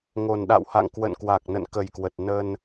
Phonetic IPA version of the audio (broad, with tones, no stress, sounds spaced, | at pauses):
ŋ o˨˩ n ɗ a̰˧˨ w h a̰˧˨ ŋ k w ə̰˧˨ n k w a˨˩ k̚ n ə̰˧˨ n k ə˨˩ j k w ə˨˩ t̚ n ə˧ n